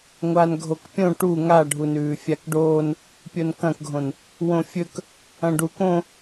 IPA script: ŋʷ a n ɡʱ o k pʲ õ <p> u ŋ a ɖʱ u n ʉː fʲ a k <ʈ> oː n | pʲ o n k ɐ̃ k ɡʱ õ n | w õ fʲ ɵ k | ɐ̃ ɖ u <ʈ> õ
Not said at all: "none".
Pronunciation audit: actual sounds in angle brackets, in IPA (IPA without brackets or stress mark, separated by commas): ʈ, ɖ, k